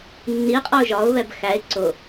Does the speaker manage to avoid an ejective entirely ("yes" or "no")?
no